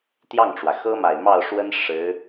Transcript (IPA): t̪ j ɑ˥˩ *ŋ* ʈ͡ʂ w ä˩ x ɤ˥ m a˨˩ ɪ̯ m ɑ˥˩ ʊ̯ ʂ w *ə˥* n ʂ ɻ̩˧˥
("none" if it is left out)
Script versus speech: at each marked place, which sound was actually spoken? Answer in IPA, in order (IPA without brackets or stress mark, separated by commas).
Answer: ŋ, ə˥